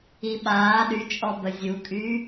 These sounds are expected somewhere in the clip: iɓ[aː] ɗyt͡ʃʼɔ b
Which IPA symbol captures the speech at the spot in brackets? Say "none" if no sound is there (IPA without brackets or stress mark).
aː